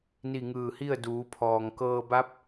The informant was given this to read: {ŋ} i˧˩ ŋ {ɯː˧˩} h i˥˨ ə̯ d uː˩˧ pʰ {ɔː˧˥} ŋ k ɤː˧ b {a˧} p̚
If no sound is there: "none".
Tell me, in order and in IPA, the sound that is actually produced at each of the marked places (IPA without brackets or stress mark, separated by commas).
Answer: n, ɯː˧˩, ɔː˩, a˧˥